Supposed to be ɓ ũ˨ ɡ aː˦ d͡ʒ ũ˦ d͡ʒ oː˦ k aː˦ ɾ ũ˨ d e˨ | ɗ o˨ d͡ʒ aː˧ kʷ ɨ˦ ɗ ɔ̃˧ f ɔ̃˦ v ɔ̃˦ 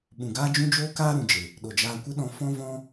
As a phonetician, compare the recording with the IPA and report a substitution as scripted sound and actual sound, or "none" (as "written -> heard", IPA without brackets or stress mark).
d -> d͡ʒ